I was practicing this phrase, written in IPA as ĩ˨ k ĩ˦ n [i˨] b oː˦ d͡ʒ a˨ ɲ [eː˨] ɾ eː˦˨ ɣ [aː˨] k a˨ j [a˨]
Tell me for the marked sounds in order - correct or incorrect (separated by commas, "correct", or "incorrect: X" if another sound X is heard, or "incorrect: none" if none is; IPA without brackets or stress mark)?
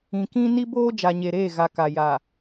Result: incorrect: i˦, incorrect: e˨, incorrect: a˨, correct